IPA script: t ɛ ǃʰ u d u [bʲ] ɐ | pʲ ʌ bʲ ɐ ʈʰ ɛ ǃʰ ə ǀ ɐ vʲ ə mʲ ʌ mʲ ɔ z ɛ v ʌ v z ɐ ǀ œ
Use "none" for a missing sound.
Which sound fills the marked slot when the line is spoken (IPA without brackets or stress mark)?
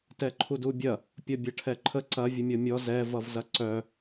bʲ